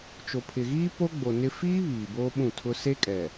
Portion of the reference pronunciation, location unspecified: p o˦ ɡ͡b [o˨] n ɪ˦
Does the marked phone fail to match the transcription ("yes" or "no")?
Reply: no